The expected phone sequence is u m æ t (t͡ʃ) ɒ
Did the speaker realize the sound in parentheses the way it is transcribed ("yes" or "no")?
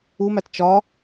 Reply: yes